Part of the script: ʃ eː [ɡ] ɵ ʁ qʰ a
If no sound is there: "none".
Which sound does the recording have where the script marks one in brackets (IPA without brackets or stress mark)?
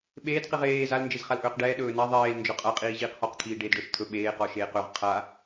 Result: q